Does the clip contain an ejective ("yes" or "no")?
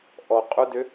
yes